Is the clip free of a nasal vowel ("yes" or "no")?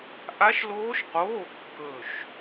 yes